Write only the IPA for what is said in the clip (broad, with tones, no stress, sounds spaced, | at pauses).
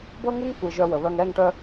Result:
b ɤ˦ ŋ u˦ ŋ kʷ i˨ ʒ œ˧ w ə˨ β œ˧ ŋ ɛ˦˨ ŋ ʈ œ˧